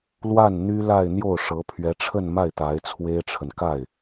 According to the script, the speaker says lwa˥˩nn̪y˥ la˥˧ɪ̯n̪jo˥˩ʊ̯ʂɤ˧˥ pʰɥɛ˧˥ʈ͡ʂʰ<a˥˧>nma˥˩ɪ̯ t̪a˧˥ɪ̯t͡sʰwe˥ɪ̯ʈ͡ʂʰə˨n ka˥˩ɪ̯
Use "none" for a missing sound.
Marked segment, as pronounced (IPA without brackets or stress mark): ə˥˧